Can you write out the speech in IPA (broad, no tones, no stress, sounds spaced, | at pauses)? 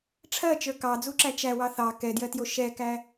ʈ͡ʂʰ ɜ t͡ʃ ə˞ k ɑ d͡z u ǁ æ t͡ʃ æ w ɑ θ ɑ k ɛ d j ɜ t j o ʃ ɛ k æ